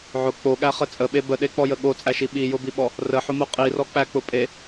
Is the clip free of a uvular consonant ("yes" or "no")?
no